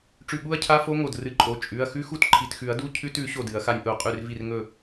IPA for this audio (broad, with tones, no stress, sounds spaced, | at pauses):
ʈ͡ʂ ʉ˧˩ ɠ u˦˥ ɐ̯ cʰ a˧˥˧ f o˦˥ ŋ o˧˩ d r ɨ˨˩˦ ǃʼ o˩˧˩ t͡ʃʼ ʉ˩˧˩ ɐ̯ x ʉ˦˥ x u˥˩ t ǃʰ i˩˧˩ t x ʉ˨˩˦ ɐ̯ d u˧˥˧ cʰ ʉ˧˥˧ t ʉ˨˩˦ ɕ o˥˩ d ɨ˨˩˦ ɐ̯ x a˦˥ nʲ ʔ o˧˩ qʼ ʉ˥˩ r v i˥˩ r ŋ ɵ˥˩